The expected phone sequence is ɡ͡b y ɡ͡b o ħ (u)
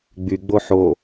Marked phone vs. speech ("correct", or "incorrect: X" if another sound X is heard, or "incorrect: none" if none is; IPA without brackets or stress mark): incorrect: o